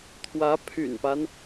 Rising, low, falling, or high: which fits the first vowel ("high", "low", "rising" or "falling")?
rising